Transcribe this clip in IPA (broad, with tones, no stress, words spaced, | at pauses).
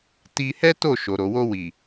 ti˧hɛ˦to˦˨ ʃo˨ɾo˨wo˧wi˨